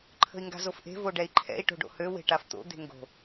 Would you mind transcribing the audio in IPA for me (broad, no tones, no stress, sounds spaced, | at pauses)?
ǃʰ ə̤ i̯ ŋ ɡ a̤ z o f ʔ e̤ v o ɖ ɛ i̯ ǃʰ ɛ̰ i̯ ʈ o̤ ɖ o̰ h ø w e̤ ʈ a f t̪ o̰ d̪ e̤ ŋ ɡ o̤